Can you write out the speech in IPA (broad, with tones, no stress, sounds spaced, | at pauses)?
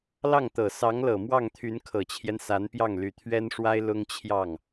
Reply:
l ɑ˥˩ ŋ t̪ ɤ˨˩ s ɑ˧˥ ŋ l ɤ˨˩ m w ɑ˥˩ ŋ t̪ʰ y˧˥ n kʰ ɤ˨˩ t͡ɕʰ j ɛ˦ n s a˧˥ n p j ɑ˥˩ ŋ l y˨˩ t̪ʰ ɥ ɛ˥ n ʂ w a˥ ɪ̯ l ʊ˥ ŋ t͡ɕʰ j ɑ˥˩ ŋ